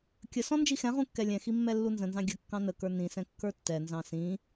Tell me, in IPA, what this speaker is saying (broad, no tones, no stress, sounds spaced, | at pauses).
kʲ ə s ɔ̃ n d͡ʒ i x ɛ̃ ʁ ũ kː ɛ lʲ ɛ̃ x i mː ɛ lː u n z ə̃ n z ɑ̃ ɡʲ ə kː ɑ̃ n ə k ə˞ n ĩ s ɛ̃ kː ə˞ tː ɛ n z ɑ̃ s ĩ